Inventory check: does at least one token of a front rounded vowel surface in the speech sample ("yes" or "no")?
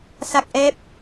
no